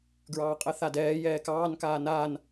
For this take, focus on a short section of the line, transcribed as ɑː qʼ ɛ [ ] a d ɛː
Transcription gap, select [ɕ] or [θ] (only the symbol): θ